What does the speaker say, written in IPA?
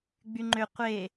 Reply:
ɡ͡b y ŋ͡ǃ ø qʷ e

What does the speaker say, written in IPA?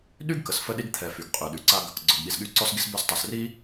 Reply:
ɗ y˥ ɡ k ə˩ s f ə˥ ɗ i˥ ɡ t̪ʰ ɛ˩ f y˩ ɡ qʼ y˩ ɗ y˩ ǀ a˧ ɡ | ɡ͡ǀ ɔ˩ ɡ ɠ i˩ s ɠ y˧ ǀ ɔ˧ s ɡ i˧ s b ø˧ s tˤ ø˩ s r i˥

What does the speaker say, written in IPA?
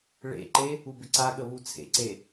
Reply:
ɭ ḛ ǃ e | u b ɪ ǀ a ɠ ə β u t͡sʰ ḛ ǀ e

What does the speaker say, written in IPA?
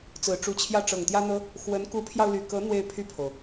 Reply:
t͡s ɹ̩˨˩ ʈ͡ʂ u˧˥ t͡ɕʰ j ä˥˩ ʈ͡ʂ ɤ˨˩ ŋ t̪ j ä˥ n̪ ɤ˥ | x w ə˧˥ n k u˧˥ pʰ j ɑ˧ ʊ̯ l y˨˩ k ɤ˧˥ n̪ w e˥˧ ɪ̯ pʰ y˥˩ pʰ o˩ ʊ̯

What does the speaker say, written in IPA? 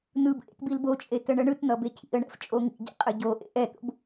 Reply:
n̪ ɯ b ʔ ḛ t b i l b o t͡ʃʼ e t ə ɳ ə ɳ ɯ t n̪ ʌ b e cʰ ḭ ə̯ ɳ ɛ̰ f t͡ʃʼ o ŋ ḭ ɟ ḛ qʼ ə ɟ o ʔ ḛ ʔ ɛ t̪ o̰ b

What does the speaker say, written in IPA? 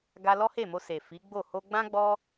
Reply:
ɡ a˧ l ɔ˦ h e˦˨ m o˧ s e˨ f i˨˦ ɡ͡b o˦˨ h o˧ ɡ͡b ã˦ ɡ͡b ɔ˦

